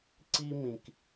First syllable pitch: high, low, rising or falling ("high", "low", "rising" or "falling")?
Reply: high